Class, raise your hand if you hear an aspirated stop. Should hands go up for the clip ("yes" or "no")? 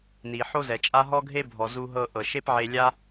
no